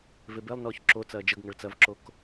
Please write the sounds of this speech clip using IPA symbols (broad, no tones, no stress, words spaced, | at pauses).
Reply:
vebelˠnɔːç ǁo t͡sɐːd͡ʒəɡŋɐɭ t͡sɐvǁok